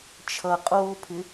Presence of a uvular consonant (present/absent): present